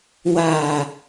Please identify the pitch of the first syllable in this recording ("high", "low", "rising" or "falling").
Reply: low